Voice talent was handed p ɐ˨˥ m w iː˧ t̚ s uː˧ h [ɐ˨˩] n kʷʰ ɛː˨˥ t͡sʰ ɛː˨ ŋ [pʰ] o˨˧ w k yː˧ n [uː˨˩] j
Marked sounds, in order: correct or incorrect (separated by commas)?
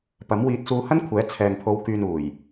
incorrect, correct, correct